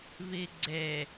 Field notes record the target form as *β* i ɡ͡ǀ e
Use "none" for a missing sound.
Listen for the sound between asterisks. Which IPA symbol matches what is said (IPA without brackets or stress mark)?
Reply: β